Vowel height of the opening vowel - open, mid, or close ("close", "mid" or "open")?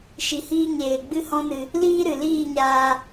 close